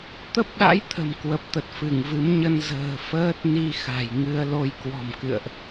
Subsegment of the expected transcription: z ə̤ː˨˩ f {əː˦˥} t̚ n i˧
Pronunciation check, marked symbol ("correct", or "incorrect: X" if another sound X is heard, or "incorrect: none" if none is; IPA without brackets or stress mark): correct